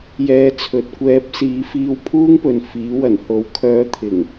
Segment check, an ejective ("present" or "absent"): absent